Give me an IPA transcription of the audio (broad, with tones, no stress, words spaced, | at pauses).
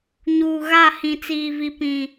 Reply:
ɲuː˨ɣa˦˨ hĩ˨t͡siː˨vi˨ pĩ˨